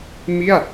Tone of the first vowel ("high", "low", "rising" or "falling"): falling